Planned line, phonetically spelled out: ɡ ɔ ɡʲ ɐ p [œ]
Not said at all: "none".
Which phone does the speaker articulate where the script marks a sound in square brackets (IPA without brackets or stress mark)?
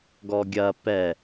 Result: ɛ